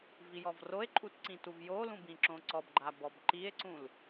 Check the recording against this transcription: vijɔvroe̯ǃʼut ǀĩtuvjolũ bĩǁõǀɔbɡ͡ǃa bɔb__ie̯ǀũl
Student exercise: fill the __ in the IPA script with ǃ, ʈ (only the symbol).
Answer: ǃ